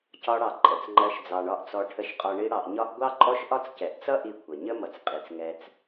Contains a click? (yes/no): yes